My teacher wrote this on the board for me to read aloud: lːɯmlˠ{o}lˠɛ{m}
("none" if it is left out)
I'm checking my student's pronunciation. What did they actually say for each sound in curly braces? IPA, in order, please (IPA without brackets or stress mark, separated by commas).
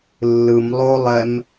o, m